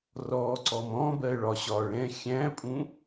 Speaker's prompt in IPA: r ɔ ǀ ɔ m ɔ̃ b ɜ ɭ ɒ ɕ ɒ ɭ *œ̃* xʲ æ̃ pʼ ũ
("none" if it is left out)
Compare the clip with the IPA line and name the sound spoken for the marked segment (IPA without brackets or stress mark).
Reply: ɛ̃